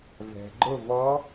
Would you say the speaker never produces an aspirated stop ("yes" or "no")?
yes